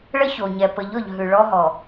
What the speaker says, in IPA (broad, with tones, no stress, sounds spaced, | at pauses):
ɭ ə˦ ç o˨ ɲ ɛ˨ p ə˨˦ ʎ ɔ˨ ʎ ɦ ʉ˨ ɭ ɔ˦ ɦ ɔ˨